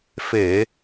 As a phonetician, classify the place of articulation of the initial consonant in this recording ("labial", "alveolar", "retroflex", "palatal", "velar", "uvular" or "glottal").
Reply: labial